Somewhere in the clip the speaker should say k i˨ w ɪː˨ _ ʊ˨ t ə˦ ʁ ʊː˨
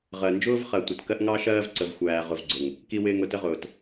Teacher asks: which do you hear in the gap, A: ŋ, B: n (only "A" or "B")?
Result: A